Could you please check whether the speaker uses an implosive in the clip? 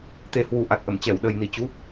yes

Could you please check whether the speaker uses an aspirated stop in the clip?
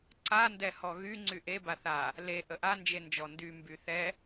no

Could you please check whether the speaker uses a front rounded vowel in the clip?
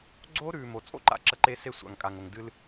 no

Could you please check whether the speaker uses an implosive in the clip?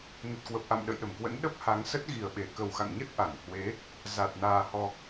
yes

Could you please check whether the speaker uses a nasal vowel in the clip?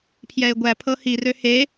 no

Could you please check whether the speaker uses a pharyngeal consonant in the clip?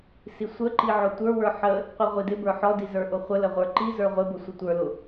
yes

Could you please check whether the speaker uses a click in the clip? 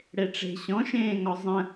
no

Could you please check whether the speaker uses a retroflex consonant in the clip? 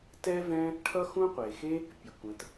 yes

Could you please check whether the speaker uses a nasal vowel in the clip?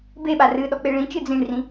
yes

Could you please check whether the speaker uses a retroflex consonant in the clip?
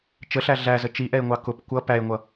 no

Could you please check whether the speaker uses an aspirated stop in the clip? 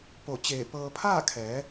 yes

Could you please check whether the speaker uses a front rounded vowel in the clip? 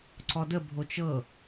no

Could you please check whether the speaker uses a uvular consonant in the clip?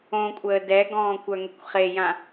yes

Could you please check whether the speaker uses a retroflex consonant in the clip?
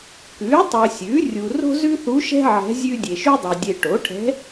yes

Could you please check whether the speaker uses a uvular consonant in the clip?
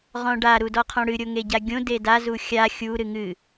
yes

